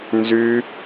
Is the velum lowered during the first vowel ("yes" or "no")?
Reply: no